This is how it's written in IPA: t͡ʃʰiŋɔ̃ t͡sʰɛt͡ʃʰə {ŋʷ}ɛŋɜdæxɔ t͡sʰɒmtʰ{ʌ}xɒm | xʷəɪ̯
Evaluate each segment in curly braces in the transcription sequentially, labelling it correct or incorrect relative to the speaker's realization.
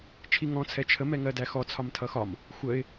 incorrect: m, correct

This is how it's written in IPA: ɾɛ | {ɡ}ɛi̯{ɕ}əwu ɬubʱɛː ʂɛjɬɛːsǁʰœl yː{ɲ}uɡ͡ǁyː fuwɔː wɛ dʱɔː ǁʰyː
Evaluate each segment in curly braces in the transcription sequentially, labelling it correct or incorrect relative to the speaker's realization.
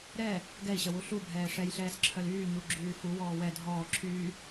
correct, correct, correct

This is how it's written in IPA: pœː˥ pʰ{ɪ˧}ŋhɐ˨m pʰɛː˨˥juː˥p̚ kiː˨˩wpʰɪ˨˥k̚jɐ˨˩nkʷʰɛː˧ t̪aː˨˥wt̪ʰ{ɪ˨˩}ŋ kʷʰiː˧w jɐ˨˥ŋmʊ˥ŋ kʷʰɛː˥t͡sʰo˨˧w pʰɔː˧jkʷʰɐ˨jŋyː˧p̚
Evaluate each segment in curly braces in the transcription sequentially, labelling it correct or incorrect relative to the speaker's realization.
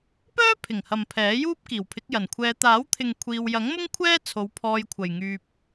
incorrect: ɪ˨˩, incorrect: ɪ˨

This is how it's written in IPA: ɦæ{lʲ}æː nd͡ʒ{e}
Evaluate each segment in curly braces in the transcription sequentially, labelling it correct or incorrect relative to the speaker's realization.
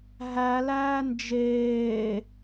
incorrect: l, incorrect: eː

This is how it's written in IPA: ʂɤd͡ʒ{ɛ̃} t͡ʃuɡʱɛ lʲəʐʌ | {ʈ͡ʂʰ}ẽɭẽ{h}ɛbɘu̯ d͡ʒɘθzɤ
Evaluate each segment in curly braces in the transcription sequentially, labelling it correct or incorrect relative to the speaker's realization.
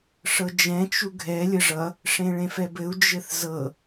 correct, incorrect: ʂ, incorrect: f

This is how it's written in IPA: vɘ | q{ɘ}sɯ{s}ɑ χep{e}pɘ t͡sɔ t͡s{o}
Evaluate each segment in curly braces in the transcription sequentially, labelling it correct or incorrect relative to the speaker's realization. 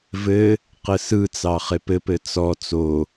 correct, incorrect: t͡s, incorrect: ɘ, correct

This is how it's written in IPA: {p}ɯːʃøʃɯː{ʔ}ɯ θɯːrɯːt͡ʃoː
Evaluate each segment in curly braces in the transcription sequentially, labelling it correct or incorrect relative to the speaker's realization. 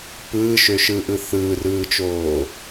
correct, correct

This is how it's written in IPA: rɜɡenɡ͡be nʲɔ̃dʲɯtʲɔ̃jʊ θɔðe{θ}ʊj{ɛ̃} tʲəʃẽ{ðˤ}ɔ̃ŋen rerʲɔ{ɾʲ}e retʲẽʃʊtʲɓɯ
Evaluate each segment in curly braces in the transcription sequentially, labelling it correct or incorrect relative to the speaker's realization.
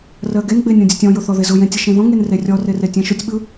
incorrect: z, incorrect: ẽ, incorrect: ð, incorrect: r

